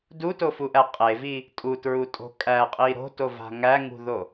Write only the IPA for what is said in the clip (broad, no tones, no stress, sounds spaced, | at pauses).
d u t o f u ʔ æ qʼ e v i | tʼ u t ɹ u tʼ o̤ kʼ æ qʼ i ɾ o̤ t o v a̤ ŋ æ ŋ ṳ ð o